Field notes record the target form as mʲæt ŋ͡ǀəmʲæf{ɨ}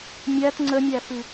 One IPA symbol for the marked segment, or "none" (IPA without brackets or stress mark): ɨ